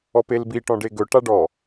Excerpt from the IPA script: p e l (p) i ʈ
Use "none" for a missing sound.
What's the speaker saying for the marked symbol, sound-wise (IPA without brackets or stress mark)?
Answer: b